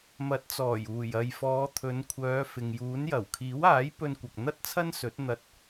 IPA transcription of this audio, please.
m ɐ˨˥ t̚ t͡s ɔː˨˩ j uː˨˩ j ɐ˨ j f ɔː˨˧ t̪ʰ ɵ˨˧ n kʷʰ œː˨˧ f ɪ˨ ŋ j uː˨˥ n j ɐ˨˩ w kʰ iː˨˥ w aː˨˥ j p ɵ˧ n kʷ ɐ˨ k̚ n̪ ɐ˥ t̚ t͡sʰ ɐ˥ n s ɵ˨˥ t̚ n̪ ɐ˧ t̚

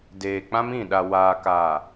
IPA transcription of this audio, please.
d eː˨ k͡p ã˦ m ĩ˦˨ ɗ a˨ w aː˨ k aː˨

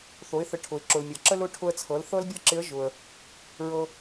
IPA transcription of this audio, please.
θ o˩˧ ɪ̯ θ ə˩˧ ʈʰ ʊ˩ ɪ̯ ǁ ʊ˩ l mʲ ɤ˩ ǁ ə˥ l ʊ˧˥ ʈʰ ʊ˧ ə̯ t͡sʰ ɤ˩˧ l θ ɤ˥ l bʲ ɤ˥ ǁ ɪ˧˥ ə̯ ʒ ʊ˩ ə̯ | ɹ ɤ˧

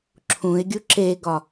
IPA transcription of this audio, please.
ǁʰ ũ ɪ̯ ɡʲ u ǁ e ɡ ɒ

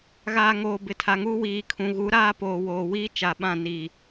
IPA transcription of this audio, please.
ɣ aː˨ ŋ oː˨ b ɪ˨ tʰ a˨ ŋ uː˦ w iː˨ kʰ ũ˨ ɣ u˨˦ ɾ aː˦ p oː˨ w oː˨ w iː˦ t͡ʃ a˨ ɓ ã˦˨ n iː˨

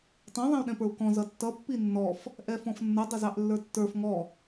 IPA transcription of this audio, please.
tˤ ɛ̃ ðˤ ɛ̃ u̯ ɗ ɛ̃ p ə˞ u̯ k ɔ̃ z ʌ tː ʌ pː i nː ɔ f | ʔ ɛ f ɔ̃ f nː ʌ dˤ ə z ɑ ʔ lː ə˞ tː ə˞ f ŋ ɔ

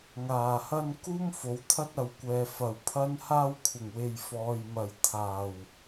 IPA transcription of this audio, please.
ŋ aː˨˩ h ɐ˥ n k uː˥ m f o˨˥ w t̪ʰ ɐ˥ t̚ ɐ˨ w kʷ ɛː˨ f ɐ˨˩ w pʰ ɐ˥ n h aː˥ w kʷʰ ɪ˨˩ ŋ w e˨ j f ɔː˨ j m ɐ˨ j t̪ʰ aː˨˩ w

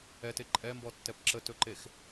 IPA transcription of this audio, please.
ɛ t e ǃʼ ɛ m b ɔ tː ɛ p ǁ ə t ɵ ǃ e x

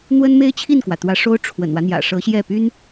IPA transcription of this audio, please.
n̪ w ə˥ n m e˥ ɪ̯ t͡ɕʰ i˥˩ n k w ä˩ t̪ w ä˧˥ ʂ o˥ ʊ̯ ʈ͡ʂʰ w ə̰˨˩ n w ä˦ n̪ j ä̰˨˩ ʂ ɤ˧˥ ɕ j ɛ˥˩ p y˥ n

